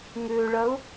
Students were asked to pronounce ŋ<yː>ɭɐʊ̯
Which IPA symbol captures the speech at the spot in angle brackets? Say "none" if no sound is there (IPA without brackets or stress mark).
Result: ʏː